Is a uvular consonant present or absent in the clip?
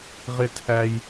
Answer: present